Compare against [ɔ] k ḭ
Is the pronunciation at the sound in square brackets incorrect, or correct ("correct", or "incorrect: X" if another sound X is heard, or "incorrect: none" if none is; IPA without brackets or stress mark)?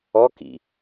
correct